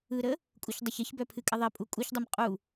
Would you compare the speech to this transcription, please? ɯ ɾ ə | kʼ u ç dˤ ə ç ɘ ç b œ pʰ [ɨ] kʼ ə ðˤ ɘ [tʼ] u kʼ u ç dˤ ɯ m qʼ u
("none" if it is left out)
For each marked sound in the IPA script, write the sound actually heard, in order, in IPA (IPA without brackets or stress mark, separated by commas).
ɨ, pʼ